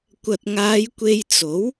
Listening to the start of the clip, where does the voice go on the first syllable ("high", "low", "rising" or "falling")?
low